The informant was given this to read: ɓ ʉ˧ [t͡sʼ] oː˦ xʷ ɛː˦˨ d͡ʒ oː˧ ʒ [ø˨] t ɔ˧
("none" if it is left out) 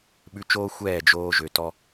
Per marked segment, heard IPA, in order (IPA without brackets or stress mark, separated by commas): t͡ʃ, ø˨